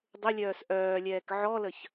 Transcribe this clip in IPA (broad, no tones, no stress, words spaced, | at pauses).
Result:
dˤʏlʲœːs ʔœːlʲɛːk ʕɔləç